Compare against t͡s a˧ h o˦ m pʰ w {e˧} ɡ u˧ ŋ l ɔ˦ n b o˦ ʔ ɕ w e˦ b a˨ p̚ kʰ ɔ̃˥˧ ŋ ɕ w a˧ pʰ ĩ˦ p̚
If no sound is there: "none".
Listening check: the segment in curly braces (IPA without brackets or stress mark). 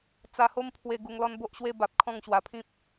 e˧